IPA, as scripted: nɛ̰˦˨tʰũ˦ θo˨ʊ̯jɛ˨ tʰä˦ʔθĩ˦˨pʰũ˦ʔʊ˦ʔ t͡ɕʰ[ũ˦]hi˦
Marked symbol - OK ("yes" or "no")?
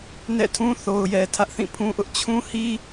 yes